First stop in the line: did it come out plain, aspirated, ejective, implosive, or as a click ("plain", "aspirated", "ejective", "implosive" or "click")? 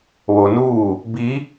plain